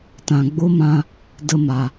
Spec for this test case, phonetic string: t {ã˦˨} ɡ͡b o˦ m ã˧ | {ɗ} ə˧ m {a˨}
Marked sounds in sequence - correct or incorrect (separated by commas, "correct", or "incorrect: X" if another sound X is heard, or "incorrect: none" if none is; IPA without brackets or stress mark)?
incorrect: ã˨, incorrect: d, correct